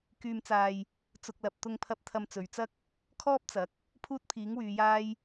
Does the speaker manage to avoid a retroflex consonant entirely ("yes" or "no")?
yes